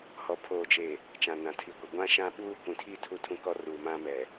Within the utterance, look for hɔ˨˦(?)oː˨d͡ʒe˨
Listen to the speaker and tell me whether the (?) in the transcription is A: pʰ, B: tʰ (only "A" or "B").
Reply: A